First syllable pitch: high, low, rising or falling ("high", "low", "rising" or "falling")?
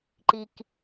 low